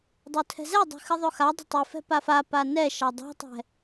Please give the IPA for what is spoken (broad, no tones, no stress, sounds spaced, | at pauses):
dˤ o tʰ ɛ̤ z ɛ dˤ ɛ̤ x ɨ ðˤ o x a dˤ ə̤ tˤ ɨ f ɛ̤ p a f a p a n ɛ ʃ a dˤ ɛ̤ tˤ ɛ̤